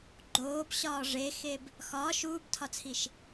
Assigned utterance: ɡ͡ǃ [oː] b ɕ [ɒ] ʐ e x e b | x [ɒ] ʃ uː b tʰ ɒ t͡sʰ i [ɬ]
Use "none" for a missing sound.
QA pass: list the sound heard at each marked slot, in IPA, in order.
oː, ɒː, ɒː, ʃ

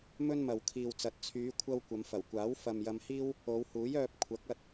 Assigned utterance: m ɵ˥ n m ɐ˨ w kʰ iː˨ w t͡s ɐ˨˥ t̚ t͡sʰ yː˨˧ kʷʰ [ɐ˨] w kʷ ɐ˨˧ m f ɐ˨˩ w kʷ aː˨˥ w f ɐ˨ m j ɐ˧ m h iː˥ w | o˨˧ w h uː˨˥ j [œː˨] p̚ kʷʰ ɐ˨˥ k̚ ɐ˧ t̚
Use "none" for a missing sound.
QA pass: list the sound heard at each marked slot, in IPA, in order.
ɐ˧, œː˧

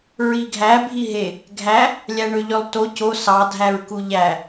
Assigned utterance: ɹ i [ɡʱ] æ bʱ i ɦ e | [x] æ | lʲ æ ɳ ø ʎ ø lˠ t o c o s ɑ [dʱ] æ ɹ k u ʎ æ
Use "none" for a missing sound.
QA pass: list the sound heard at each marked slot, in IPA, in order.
ɡʱ, ɡʱ, dʱ

